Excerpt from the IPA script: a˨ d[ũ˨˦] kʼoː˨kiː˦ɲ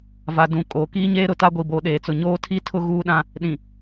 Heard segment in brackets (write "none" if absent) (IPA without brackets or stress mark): ũ˨